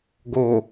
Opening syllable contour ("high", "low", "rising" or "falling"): low